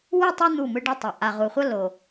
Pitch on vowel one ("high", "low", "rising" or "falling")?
falling